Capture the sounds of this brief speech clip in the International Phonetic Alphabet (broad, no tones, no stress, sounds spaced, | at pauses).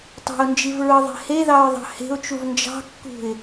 tˤ e̤ ʊ̯ n d͡ʒ i v ɹ ɯ ðˤ e̤ h e ð ɑ ɹ ðˤ ɑ̤ h e̤ ʊ̯ t͡ʃ u v n d͡ʒ ɑ̤ kː ṳ ɪ̯